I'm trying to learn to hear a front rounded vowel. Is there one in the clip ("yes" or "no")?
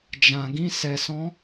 no